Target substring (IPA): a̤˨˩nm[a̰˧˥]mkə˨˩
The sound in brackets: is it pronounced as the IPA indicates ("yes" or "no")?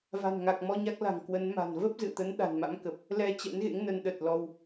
yes